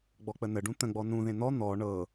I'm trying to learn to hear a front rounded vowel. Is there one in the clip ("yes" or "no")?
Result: no